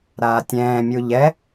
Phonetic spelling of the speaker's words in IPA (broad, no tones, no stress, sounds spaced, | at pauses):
ɾ aː tʲ ɛ̃ː mʲ u ʎ ɛ